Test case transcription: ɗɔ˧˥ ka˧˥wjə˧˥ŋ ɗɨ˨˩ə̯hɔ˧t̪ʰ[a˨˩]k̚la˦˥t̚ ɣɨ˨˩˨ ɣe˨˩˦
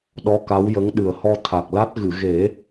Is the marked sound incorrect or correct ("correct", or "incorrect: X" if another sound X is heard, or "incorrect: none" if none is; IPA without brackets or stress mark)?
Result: correct